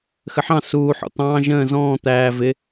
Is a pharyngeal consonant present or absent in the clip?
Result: present